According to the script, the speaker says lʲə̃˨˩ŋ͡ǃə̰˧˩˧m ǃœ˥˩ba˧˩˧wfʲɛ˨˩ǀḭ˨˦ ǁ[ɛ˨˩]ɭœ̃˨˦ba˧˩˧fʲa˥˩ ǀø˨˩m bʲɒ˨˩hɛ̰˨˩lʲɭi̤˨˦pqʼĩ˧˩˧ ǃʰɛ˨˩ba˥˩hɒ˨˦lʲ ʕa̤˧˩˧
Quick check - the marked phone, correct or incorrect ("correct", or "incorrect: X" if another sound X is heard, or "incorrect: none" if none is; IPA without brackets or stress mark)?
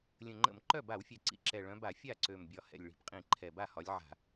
correct